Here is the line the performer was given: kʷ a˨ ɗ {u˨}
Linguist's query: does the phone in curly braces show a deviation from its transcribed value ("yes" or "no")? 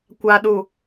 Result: no